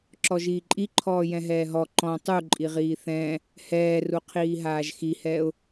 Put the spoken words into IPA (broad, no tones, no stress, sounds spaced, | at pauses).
ǁ ɔ ʒ iː ǃʼ i ǃʰ ɔː j ɛ̃ ɦ ɛː ɦ ɔ ǃ ɔ̃ tˤ u ǃʼ i ʁ iː θ ɛ̃ː | h ɛː r u qʰ iː ɦ aː ʒ x i h ɛː ʊ̯